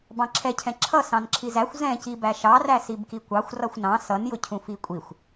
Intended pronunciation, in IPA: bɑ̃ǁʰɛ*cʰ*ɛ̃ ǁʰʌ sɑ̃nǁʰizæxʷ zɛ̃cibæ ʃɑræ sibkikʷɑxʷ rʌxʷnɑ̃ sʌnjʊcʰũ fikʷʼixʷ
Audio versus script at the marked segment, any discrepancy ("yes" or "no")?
no